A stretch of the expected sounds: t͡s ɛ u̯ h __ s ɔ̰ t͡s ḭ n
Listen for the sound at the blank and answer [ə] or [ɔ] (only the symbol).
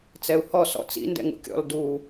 ɔ